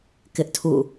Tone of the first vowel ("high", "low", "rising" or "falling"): high